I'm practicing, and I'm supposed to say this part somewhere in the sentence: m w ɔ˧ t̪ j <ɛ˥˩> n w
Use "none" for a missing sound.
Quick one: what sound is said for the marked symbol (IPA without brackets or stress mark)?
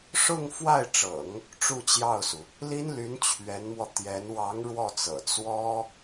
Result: ɛ˧˥